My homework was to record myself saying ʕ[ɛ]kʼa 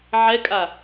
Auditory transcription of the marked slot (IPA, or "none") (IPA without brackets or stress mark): ɛ